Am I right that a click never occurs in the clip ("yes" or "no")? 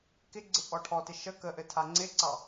no